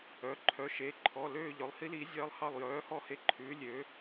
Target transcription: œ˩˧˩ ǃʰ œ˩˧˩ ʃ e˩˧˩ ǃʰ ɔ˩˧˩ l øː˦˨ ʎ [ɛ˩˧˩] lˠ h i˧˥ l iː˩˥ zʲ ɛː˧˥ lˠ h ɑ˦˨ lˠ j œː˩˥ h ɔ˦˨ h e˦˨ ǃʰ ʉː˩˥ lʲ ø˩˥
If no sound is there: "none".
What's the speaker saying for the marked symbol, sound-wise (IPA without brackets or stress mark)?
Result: œ˩˧˩